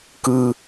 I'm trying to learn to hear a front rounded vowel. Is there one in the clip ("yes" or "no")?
no